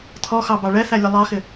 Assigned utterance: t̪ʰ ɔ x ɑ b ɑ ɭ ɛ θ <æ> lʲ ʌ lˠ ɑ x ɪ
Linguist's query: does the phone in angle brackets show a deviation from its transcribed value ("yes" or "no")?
no